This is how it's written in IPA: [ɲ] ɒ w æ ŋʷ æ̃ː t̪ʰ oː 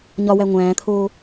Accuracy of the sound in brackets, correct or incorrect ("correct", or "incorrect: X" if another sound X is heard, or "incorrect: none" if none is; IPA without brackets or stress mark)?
correct